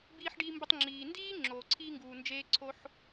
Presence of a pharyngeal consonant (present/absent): present